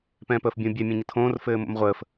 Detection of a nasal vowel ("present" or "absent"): present